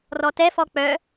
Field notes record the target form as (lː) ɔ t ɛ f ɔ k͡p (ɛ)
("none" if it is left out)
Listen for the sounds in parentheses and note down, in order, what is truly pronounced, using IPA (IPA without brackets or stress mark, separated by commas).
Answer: r, œ